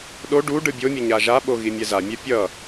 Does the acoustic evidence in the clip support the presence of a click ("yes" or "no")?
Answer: no